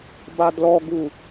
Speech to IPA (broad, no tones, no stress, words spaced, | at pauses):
badlɔɡu